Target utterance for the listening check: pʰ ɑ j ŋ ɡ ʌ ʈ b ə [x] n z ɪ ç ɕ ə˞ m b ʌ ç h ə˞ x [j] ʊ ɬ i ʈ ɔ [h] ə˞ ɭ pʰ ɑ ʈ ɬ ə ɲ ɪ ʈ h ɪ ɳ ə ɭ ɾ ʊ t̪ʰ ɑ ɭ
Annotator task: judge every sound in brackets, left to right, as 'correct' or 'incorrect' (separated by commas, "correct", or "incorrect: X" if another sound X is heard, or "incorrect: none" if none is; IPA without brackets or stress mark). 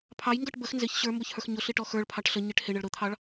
correct, incorrect: ɲ, incorrect: x